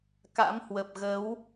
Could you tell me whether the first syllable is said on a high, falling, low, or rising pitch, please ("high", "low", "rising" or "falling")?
rising